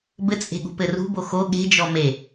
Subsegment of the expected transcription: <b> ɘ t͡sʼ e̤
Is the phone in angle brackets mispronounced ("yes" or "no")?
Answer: no